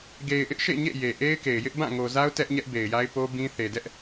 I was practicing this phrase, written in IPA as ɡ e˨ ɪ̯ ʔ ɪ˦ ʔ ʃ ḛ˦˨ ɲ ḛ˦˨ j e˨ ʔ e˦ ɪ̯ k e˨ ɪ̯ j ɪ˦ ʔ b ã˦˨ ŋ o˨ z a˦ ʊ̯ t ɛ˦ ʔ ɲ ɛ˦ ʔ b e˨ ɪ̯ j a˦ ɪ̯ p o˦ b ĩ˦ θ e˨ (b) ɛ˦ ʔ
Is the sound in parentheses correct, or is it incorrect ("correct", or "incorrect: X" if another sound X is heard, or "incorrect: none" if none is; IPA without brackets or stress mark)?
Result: incorrect: d